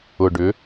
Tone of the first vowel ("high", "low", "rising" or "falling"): low